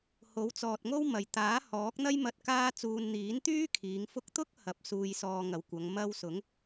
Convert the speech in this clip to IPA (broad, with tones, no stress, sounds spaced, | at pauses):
h o˨˥ w t͡s ɔː˨ t̚ ŋ o˥ w m ɐ˨ j t̪ aː˨˥ h ɔː˨˥ k̚ n̪ ɐ˥ j m ɐ˧ t̚ k aː˥ t͡s uː˧ n n̪ iː˨˥ n t̪ yː˥ kʰ iː˨˧ ŋ f ʊ˥ k̚ t̪ ʊ˥ k̚ h ɐ˨˥ p̚ s uː˧ j s ɔː˧ ŋ ɐ˨ w kʷ ɐ˨˧ ŋ m ɐ˧ w s ʊ˨˥ ŋ